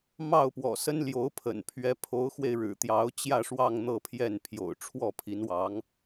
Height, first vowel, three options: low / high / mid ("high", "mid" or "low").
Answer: low